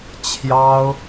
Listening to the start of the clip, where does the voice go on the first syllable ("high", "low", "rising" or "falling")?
high